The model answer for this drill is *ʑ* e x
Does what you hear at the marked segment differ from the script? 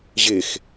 no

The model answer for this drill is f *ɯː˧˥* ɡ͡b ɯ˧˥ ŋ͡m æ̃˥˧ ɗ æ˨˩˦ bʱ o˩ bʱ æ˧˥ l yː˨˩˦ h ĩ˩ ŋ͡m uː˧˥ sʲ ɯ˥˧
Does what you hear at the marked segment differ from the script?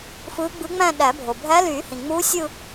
no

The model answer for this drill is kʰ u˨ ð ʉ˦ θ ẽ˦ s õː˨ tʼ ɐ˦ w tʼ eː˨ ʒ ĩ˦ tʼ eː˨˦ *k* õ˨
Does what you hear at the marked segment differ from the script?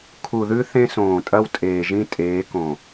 no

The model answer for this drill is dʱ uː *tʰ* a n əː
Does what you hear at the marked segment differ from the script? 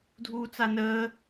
yes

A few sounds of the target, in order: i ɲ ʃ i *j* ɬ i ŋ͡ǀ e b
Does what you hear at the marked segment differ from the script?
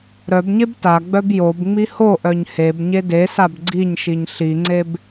yes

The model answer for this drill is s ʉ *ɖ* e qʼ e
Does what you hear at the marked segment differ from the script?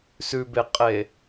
yes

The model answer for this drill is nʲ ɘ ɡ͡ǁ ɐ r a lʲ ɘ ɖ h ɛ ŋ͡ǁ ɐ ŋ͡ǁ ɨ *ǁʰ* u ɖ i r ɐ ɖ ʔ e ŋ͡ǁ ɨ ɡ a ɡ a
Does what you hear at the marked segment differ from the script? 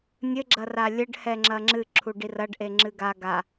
no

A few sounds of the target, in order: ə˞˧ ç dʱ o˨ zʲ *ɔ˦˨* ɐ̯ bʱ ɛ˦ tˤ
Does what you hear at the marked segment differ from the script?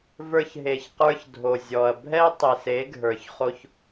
yes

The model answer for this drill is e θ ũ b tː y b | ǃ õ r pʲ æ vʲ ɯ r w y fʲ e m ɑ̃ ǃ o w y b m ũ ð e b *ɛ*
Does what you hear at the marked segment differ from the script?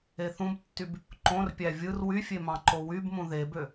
yes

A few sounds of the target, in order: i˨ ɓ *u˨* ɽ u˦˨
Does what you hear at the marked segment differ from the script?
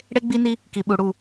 no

